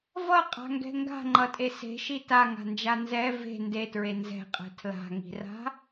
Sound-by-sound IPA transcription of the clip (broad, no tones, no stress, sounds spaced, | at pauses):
v ʌ qʼ a̤ ŋ ɡ ɛ̤ ŋ ɡ a̤ ŋ͡ǃ ʌ tʼ e s e̤ ʃ i t a ŋ a̤ n d͡ʒ a n z ɛ v e̤ n d e t ɹ e n z ɛ̤ qʼ ɛ̤ tʰ l a̤ ŋ i̤ r a̤